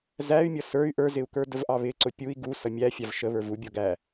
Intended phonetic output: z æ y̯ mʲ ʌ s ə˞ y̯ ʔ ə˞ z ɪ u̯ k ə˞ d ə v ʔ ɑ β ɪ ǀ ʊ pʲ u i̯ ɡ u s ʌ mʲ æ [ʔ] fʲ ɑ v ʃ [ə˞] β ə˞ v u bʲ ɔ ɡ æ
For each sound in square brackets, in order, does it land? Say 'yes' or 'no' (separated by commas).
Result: no, no